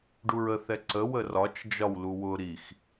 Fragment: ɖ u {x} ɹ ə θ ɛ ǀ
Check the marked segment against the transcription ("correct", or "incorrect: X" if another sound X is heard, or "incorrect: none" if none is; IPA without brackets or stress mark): incorrect: none